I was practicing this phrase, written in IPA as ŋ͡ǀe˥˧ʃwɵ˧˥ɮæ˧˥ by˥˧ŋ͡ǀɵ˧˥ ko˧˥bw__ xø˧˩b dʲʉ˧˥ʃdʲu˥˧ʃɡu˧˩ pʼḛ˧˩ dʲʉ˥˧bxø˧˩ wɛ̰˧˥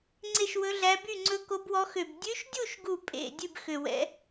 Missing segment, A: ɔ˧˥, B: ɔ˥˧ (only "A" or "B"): A